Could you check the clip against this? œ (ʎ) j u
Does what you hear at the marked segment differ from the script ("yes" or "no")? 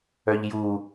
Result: no